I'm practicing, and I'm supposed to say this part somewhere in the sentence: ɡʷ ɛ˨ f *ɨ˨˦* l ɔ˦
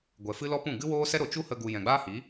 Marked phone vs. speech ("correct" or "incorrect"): incorrect